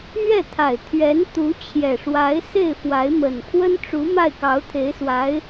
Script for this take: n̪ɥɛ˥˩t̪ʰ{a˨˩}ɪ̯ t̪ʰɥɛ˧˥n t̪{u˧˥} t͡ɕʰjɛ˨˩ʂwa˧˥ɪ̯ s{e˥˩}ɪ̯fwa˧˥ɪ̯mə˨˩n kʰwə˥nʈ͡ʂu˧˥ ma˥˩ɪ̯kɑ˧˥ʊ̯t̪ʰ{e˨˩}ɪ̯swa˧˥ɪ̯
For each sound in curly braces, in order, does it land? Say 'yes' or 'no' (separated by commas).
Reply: yes, yes, yes, no